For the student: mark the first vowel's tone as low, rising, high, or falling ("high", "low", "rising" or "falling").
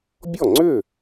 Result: falling